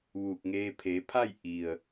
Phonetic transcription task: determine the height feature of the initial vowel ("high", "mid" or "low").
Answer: high